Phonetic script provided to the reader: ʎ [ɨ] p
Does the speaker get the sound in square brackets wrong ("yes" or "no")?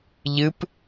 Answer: no